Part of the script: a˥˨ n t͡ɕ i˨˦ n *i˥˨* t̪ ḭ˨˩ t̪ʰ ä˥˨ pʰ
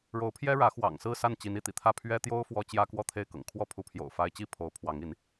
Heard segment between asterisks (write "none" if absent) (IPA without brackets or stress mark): i˥˨